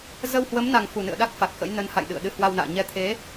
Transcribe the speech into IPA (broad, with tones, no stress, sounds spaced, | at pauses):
z ə˧ w h w ə˨˦ m n a˨˩ ŋ f u˨˩ n ɨ̰˧˨ ə̯ ɗ a˦˥ k̚ f a˨˩ k̚ x ə̰˧˥ j n ə˨˦ n h a̰˧˨ j ɗ ɨ̰˧˨ ə̯ ɗ ɨ˧ h w a˧ w n a̰ː˧˨ ɲ ɛ˨˦ t̪ʰ e˨˦